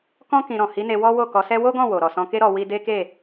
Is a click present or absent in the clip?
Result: absent